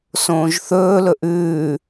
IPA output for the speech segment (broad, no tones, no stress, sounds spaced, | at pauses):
s õː ʒ θ ɵː l ɵ ʔ ʉː